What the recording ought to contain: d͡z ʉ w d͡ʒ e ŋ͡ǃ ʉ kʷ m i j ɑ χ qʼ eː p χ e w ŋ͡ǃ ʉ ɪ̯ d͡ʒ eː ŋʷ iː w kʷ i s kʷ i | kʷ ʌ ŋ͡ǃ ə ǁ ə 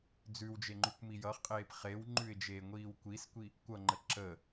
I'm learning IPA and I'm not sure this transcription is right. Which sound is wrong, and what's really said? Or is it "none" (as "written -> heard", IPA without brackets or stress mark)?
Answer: ɑ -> ʌ